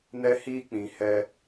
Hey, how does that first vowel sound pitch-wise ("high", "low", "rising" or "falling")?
high